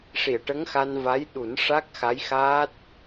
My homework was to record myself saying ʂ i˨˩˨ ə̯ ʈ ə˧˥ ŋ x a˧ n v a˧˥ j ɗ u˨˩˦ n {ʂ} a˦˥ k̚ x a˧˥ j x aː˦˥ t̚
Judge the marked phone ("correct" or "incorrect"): correct